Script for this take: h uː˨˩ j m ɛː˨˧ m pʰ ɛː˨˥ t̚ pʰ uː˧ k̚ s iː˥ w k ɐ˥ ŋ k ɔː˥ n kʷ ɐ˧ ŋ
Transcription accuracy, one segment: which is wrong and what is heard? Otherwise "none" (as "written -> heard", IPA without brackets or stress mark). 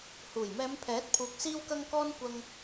none